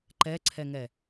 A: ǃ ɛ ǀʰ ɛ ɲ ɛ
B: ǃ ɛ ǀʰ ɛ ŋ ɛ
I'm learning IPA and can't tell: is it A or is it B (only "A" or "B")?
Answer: B